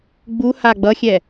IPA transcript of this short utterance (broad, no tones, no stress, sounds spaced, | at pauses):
ɡ͡b u h a ɡ͡b ʌ xʲ ɛ